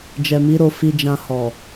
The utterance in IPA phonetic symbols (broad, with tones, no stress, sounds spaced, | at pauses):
d͡ʒ ɛ˨ m i˨˦ ɾ o˧ f i˧ d͡ʒ ã˧ h ɔ˨